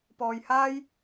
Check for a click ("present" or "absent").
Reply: absent